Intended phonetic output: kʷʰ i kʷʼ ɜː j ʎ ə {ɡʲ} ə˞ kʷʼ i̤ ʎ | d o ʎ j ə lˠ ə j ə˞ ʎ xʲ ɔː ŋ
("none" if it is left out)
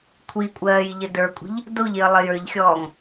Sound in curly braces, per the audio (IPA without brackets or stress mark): d